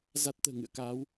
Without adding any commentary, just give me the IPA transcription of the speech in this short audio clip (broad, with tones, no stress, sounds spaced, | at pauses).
z a˦˥ t̚ t̪ ə̤ː˨˩ ŋ ɨ̰˧˨ ə̯ k aː˨˦ w